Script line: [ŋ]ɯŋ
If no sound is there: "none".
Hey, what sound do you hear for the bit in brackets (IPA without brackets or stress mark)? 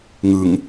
ŋ